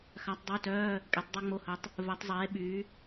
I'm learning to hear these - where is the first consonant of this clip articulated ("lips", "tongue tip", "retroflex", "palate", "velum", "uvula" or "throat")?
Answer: velum